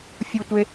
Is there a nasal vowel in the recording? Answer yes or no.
no